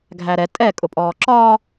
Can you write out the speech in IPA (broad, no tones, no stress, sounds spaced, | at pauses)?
ɡʱ æ ɾ ɛ tʼ ɛ kʼ ʊ pʼ ɔː ǁ ɒː